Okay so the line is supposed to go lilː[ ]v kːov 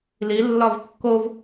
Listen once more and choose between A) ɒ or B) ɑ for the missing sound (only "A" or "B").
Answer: A